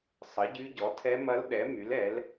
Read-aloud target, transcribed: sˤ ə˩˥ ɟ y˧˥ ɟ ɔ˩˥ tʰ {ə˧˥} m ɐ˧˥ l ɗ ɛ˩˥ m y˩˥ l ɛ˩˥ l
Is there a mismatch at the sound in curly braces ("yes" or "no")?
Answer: yes